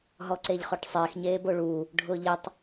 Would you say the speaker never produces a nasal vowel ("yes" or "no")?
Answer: yes